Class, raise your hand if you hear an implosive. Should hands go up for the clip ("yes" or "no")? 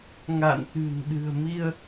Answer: yes